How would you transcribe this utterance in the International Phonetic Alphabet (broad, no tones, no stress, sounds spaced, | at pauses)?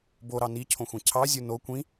b o ɾ ɑ n i cʰ õ xʷ ẽ cʰ ɑ zʲ u n o kʷ ĩ